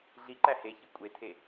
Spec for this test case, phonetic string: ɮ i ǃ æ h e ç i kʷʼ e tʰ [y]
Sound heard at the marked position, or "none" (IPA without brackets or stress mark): e